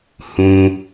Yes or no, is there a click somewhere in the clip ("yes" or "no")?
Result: no